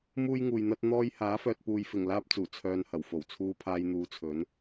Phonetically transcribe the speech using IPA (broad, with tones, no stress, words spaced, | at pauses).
muː˥jŋuː˨jn̪ɐ˥t̚n̪ɔː˥j haː˨˥fœː˨t̚puː˨jfɪ˨˩ŋ laː˥p̚t͡suː˨˩ t͡sʰœː˧nhɐ˨˩wfo˨˩w t͡sʰuː˧pʰaː˧jn̪uː˨˧t͡sʰɵ˨˥n